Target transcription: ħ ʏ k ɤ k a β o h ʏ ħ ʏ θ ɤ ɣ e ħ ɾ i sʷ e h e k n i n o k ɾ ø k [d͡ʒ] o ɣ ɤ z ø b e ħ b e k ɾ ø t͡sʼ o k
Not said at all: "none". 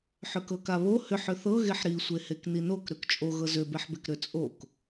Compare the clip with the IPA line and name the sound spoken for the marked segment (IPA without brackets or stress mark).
t͡ʃʼ